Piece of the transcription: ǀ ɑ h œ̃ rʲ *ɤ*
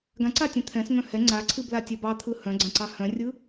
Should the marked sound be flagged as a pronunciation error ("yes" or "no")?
yes